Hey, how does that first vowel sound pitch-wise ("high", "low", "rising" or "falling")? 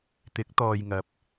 rising